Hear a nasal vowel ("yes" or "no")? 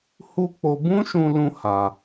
yes